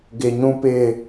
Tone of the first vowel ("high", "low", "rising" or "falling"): low